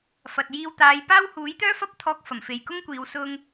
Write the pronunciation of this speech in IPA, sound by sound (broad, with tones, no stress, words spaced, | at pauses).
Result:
fɐ˨t̚jiː˧wt̪aː˨˧j paː˥w huː˨˥jt̪œː˥ fɐ˥p̚t̪ʰɔː˧k̚ fɐ˨˩mfe˨jkʊ˥ŋkʷiː˨˧w sʊ˧ŋ